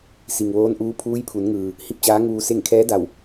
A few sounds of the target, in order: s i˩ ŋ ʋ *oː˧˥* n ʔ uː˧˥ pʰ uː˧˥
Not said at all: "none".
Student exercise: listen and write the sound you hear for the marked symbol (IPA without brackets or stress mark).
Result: oː˧˥